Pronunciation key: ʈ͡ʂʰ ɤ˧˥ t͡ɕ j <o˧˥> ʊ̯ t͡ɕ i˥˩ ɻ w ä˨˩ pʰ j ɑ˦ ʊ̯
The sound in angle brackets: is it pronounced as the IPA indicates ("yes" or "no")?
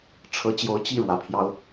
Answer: yes